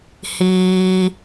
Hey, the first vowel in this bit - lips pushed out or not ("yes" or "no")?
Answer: no